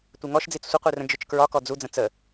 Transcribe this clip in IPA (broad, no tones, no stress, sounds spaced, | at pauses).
tʷ ɛ ŋ ɔ ʃ d͡z i t͡s sʷ ɪ qʷ i r ə̃ d͡ʒ ʊ t͡ʃ k ɹ ɒ k ɔ d͡z u d͡z ə̃ t͡s ə